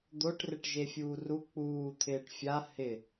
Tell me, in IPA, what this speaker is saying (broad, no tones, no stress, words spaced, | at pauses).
d̪oʈrɪʈ ʒefʲuːru k͡puː t̪ʰɪːʈfʲa hɪ